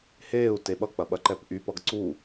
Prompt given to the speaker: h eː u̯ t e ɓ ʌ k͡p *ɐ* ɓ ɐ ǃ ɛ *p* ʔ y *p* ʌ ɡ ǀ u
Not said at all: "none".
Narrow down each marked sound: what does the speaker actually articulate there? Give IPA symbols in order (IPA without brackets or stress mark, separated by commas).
ɐ, p, p